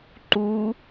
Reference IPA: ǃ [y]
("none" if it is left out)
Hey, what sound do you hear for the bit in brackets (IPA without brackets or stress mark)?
u